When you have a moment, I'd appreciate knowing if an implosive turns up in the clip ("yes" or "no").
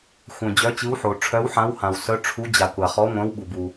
yes